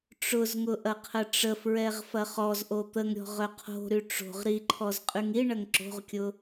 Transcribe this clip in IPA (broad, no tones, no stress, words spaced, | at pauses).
ʈ͡ʂʊzŋʊ ʔɐqʰəʈ͡ʂəfɹɛʁ fɐχɔzʔo t̪əŋɾʲɔ̤ʁ œqʰo̤ɾy ʈ͡ʂo̤ʁ ɾiǃʰɔz qʼyŋiɳɐŋ ǁo̤ʁkʲʊ